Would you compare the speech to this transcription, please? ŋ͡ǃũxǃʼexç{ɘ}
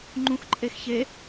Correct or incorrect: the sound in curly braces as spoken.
incorrect: e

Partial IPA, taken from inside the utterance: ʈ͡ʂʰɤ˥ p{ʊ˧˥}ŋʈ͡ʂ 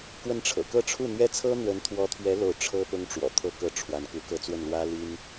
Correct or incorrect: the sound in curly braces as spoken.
incorrect: ʊ˥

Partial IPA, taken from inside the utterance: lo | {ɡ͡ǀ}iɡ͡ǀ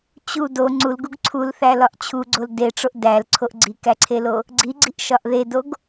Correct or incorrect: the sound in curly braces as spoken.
correct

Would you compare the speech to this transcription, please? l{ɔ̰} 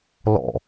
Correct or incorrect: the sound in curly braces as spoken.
correct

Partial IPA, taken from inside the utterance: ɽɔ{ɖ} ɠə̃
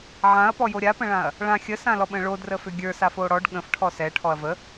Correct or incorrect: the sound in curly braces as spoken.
correct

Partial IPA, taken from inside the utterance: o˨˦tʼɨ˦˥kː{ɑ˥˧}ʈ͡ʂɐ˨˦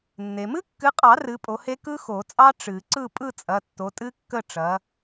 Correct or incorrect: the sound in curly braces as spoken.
incorrect: ə˥˧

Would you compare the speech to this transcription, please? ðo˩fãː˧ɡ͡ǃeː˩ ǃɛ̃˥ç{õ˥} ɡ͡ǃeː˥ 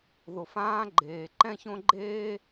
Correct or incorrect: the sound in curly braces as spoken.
correct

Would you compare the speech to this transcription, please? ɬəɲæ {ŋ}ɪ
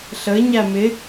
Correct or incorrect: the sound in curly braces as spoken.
incorrect: m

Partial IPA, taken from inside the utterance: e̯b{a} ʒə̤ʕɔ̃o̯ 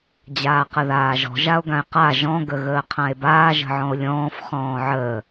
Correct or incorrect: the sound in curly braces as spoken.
incorrect: aː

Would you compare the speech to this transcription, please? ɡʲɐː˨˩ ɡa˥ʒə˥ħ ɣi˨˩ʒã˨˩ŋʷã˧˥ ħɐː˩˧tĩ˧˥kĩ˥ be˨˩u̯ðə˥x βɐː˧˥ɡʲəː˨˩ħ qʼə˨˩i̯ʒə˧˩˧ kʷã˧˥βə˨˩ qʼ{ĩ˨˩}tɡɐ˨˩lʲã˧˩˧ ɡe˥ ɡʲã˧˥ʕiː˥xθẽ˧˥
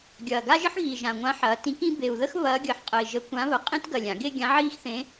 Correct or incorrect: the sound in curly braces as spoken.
incorrect: ĩ˥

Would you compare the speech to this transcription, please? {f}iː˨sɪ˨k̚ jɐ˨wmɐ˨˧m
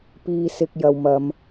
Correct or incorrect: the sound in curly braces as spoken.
incorrect: p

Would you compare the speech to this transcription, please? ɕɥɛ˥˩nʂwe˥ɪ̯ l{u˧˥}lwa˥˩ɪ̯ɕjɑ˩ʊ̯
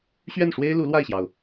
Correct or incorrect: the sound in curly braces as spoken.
correct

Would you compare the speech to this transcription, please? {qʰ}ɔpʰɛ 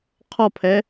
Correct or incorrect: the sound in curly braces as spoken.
correct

